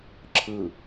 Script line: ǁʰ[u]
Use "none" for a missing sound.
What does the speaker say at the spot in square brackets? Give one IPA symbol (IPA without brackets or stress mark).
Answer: ɯ